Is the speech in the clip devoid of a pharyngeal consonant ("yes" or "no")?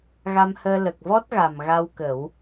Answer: yes